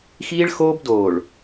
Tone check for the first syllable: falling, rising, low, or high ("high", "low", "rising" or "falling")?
high